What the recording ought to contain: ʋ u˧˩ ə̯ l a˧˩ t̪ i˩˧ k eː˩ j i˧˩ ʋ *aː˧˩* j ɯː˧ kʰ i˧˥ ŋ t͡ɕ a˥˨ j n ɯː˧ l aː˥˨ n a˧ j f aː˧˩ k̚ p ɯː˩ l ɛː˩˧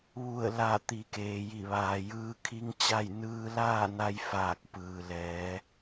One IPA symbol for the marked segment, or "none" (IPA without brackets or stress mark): aː˩